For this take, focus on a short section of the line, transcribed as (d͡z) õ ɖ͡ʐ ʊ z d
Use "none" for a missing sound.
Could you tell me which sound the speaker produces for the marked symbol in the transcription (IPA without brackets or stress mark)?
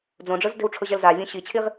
d͡z